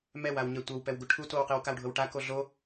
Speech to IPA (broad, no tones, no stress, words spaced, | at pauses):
mɛwawɲɛ tʷɤwpɛwɡu ʈʰutowqiw kawɖʱɤwʈa koɮo